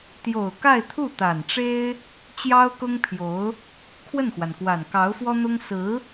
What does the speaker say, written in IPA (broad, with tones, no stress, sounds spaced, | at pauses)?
t̪ j o˨˩ ʊ̯ k a˥˧ ɪ̯ t̪ʰ u˥˩ t̪ a˨˩ n ʈ͡ʂ e˥ ɪ̯ | t͡ɕ j ɑ˥ ʊ̯ k ʊ˥ ŋ pʰ j o˧˥ ʊ̯ | kʰ w ə˥˩ n x w a˩ n k w a˨˩ n k ɑ˧˥ ʊ̯ f w ɔ˥ n̪ ʊ˥ ŋ s ɹ̩˧˥